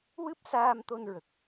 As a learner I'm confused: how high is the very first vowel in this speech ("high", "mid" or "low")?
high